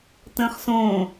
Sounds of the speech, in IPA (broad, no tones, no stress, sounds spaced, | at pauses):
t ə̃ː χ s õː